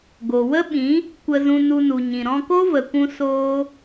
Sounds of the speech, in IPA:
ɡ o˨ w ə˦ ɓ ĩ˨˦ | kʷ ə˧ z ũ˧ n u˧ n u˨ ɲ ĩ˨ ɾ ɔ̃˧ k o˦ v ə˨ kʷ ũ˧ s oː˦

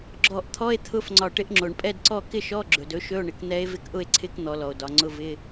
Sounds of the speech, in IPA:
ɡ͡ǁ ɔ˧˩ ʔ t̪ʰ ɔ˧˥˧ e̯ t̪ʰ ʊ˧˥˧ f ŋ͡ǀ ɒ˧˩ ʈ ɪ˧˥ ʔ ŋ͡ǁ o˩ ɳ pʼ ɛ˥˨ d ǀ ɔ˥˨ k ɪ˥˨ ʃ ɔ˧˥˧ ɡ͡ǁ ɵ˩ d ɵ˧˥ ʃ ɵ˧˥˧ o̯ ɳ ɪ˩ k n̪ ɛ˧˥ e̯ v ɪ˧˥ k ʔ ʊ˥˨ e̯ ǀʰ ɪ˧˥˧ k n̪ ɔ˩˧ l ɔ˩ o̯ d ɒ˩˧ ŋ͡ǀ ʊ˧˥˧ v ɪ˧˥˧

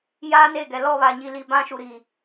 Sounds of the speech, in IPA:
j aː˦ n e˦˨ ɡ ɛ˨ l ɔ˦˨ β a˨ ɲ i˨ l i˨ b ã˦ ʃ u˨ ɾ i˨

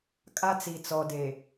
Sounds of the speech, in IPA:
kʼ a˦ t͡s i˨ t͡s ɔ˨ d e˨

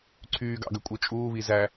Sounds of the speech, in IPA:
ǀʰ yː ɡ ɑ̰ ɡ ø kʷʼ ɯ t͡ʃʼ uː β i z æ

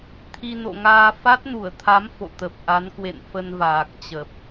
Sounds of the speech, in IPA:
t̪ʰ i˧ n o̰˧˨ ŋ aː˧ f a˦˥ t̚ n u˧˩ ə̯ t̪ʰ a˨˦ m f o̰˧˨ t̪ ə˨˩ p̚ ʔ a˨˦ n k w ḛ˧˨ n f ə˧ n v aː˨˩ k̚ t͡ɕ ə˨˩ p̚

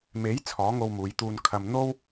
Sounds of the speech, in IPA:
m e˨˥ j t͡sʰ ɔː˨˥ ŋ o˧ w m uː˨˧ j t̪ uː˧ n kʰ ɐ˧ m n̪ o˥ w

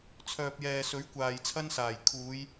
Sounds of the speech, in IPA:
t͡sʰ œː˨ p̚ j ɛː˨ s ɵ˨˥ ɥ kʷ aː˨ j t͡sʰ ɐ˧ n s aː˨˩ j kʰ uː˨˧ j

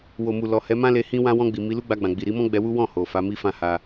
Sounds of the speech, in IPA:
w o˨ m u˨ l ɔ˨ h ɛ˨˦ m ã˦ l e˧ h ĩ˧ w ã˧ w ɔ̃˧ ɡ͡b i˨ m i˨˦ l u˦ ɡ͡b a˧ ɡ͡b ã˨ ɡ͡b i˨ ɾ i˨˦ m ɔ̃˦ ɡ͡b ɛ˧ w u˦ w ɔ̃˦˨ h o˨ f a˨˦ m i˦ f ã˧ h a˧

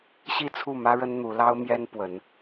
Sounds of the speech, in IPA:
ɕ i˥˨ t͡sʰ u˥˨ m ä˦ ɻ ə˦ n n̪ u˨˦ l ɑ˦ ʊ̯ m j ɛ˦ n p w ə˨˦ n

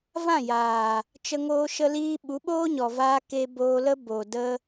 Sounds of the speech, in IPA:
v ã˦˨ j aː˨ | t͡ʃ ə˧ ŋ oː˧ ʃ ə˧ l iː˧ ɓ u˨˦ ɓ oː˦ ɲ ɔ˨ v aː˧ k e˧ b oː˧ l ə˦ b o˨ d ə˧

